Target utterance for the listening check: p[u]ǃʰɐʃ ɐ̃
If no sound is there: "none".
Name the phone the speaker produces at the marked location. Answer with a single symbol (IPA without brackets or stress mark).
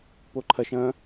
o